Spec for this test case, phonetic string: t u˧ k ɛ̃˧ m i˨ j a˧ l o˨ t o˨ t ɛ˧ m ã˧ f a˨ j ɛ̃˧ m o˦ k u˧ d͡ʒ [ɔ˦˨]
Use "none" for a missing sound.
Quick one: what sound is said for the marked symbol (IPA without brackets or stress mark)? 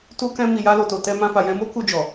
ɔ˨